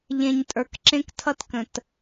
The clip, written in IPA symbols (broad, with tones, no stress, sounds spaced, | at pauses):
ʎ ẽ˨ ɲ tʼ ə˞˨ k ǁ ẽ˦ k tʰ ʌ˦ t k ə̃˨ t